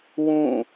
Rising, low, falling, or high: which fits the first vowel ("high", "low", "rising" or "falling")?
falling